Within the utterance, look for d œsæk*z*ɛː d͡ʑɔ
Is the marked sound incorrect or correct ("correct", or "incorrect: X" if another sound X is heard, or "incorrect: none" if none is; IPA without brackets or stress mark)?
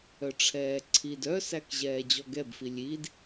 incorrect: ʑ